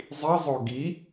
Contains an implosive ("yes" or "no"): no